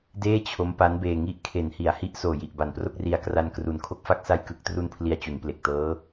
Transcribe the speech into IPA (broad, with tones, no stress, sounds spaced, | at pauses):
d eː˥˩ t͡ɕʰ o˦˥ m p a˦˥ n b eː˧ ŋ i˦˥ ʔ kʰ e˩˦ n h i˩˦ a̯ h i˦˥ ʔ s oː˨˩ j i˨˩ ʔ b a˨˩ n p r o˥˩ k̚ r i˧ a̯ k r a˧ n k r u˨˩ n kʰ o˥˩ k̚ f a˥˩ k̚ s a˧ j k ɯ˨˩ k̚ t r u˧ n pʰ l i˧ a̯ t͡ɕ u˩˦ n p l e˨˩ k̚ t ɤː˦˥